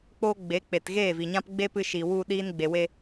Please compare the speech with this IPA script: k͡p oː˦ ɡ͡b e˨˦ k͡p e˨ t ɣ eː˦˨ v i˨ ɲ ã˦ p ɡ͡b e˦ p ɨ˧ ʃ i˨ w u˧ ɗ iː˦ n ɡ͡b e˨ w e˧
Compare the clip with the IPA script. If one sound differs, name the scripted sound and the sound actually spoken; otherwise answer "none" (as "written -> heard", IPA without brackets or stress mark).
none